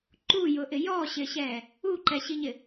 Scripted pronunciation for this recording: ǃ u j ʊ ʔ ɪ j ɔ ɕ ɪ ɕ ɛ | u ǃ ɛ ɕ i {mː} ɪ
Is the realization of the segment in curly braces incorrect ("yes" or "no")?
yes